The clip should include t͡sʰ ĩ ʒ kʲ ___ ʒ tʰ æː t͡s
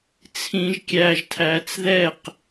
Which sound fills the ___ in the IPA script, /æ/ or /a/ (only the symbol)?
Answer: æ